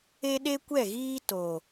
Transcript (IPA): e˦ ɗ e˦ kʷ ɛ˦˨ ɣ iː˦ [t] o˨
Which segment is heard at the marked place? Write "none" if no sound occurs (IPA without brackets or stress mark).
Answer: t